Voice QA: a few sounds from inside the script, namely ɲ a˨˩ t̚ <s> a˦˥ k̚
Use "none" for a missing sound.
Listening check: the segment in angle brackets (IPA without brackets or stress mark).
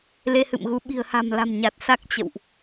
s